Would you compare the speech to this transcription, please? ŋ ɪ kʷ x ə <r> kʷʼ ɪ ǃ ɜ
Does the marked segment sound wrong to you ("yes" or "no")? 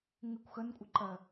yes